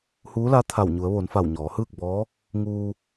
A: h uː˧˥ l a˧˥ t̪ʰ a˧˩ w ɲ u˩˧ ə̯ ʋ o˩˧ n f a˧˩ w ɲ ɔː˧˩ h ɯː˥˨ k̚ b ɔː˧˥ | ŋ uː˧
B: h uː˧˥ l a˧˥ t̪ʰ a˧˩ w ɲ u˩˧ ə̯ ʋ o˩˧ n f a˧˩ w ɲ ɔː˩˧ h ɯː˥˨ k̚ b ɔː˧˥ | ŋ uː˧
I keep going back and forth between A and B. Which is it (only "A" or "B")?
B